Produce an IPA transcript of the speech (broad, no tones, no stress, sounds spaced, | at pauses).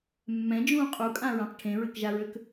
mː ɛ̃ d͡ʒ ũː qʼ u kʼ ã ɹ ã q ʈʰ ẽ ɹ ɘ k ʒ a ɹ ø k